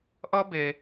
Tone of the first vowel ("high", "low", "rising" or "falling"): high